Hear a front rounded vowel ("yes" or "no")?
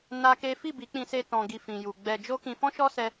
no